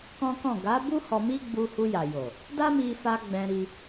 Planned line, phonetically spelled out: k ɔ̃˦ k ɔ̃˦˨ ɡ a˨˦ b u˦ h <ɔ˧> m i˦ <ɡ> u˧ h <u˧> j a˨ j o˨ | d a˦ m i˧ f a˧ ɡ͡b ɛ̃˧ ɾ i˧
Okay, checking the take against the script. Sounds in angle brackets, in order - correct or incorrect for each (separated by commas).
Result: correct, incorrect, correct